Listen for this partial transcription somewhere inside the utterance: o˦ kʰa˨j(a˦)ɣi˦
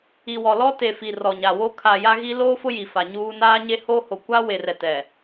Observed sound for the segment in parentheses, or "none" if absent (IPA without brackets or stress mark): a˦